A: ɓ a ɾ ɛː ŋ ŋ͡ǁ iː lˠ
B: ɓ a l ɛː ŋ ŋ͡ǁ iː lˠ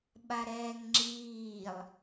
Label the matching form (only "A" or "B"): A